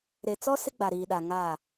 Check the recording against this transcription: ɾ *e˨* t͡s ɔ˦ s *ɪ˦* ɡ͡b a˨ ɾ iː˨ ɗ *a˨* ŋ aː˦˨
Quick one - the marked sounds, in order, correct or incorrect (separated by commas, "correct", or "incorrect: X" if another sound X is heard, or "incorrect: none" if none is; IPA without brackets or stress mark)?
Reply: correct, correct, correct